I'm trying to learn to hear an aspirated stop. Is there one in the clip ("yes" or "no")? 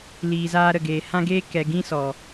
no